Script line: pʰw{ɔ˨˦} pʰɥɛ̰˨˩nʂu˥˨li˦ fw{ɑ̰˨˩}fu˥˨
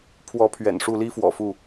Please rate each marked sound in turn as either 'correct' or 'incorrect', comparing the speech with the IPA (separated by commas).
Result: correct, incorrect